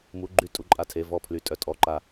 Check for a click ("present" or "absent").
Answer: present